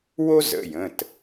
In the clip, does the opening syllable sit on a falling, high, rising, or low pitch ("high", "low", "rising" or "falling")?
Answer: high